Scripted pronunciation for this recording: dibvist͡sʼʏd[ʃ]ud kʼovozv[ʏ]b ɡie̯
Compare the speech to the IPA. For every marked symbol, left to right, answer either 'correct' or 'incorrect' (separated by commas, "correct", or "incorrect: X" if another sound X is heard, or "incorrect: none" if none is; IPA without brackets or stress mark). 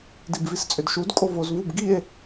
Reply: correct, incorrect: u